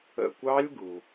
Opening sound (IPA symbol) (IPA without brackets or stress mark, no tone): ə̰